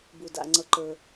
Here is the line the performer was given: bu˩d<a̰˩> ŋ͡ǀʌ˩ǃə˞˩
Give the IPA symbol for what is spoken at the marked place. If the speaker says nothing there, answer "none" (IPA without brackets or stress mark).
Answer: a̰˩